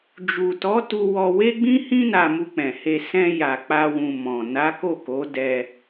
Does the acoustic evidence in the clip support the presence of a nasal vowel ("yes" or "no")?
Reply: yes